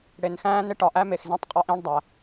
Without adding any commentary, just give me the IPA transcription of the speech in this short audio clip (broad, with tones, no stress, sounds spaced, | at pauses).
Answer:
ɽ e˨ n x æ̃ː˦ n e˦ ʈ ɒ˨ ʔ æ˦ m e˨ x z ẽ˦ tˤ qʼ ɒ˦ ʔ ĩː˦ ɳ dˤ æ˨